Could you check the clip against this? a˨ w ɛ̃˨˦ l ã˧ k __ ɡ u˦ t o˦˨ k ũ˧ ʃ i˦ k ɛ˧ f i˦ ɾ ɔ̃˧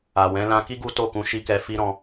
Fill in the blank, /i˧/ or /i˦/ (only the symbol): i˦